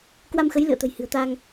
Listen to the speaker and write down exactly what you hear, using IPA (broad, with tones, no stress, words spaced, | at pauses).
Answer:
kwa˧mxə˨˦j lɨ̰˧˨ə̯t̪ə̤˨˩j hɨ̤˨˩ə̯t̪aː˧ŋ